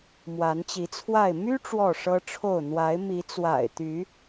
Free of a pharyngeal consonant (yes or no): yes